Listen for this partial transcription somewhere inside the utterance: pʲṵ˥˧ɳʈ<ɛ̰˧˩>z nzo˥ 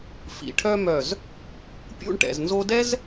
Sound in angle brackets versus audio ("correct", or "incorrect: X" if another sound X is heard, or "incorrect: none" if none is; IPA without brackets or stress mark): incorrect: ɛ̰˩˧